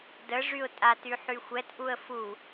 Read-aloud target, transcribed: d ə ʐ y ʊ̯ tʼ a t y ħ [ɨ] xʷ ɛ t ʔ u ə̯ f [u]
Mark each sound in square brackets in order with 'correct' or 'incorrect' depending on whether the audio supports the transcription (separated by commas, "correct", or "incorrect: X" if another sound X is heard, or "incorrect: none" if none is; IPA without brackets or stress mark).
incorrect: y, correct